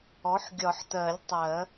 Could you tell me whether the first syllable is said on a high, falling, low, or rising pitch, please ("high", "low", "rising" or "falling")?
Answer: rising